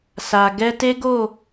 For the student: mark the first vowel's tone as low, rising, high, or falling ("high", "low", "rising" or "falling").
low